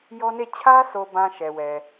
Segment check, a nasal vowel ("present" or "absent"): present